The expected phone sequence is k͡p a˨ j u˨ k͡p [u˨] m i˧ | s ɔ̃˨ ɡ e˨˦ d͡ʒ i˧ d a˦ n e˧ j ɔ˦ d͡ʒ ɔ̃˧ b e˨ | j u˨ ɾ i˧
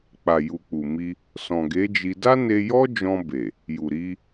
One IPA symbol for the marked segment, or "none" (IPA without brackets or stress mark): u˨